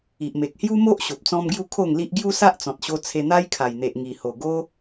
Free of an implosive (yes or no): yes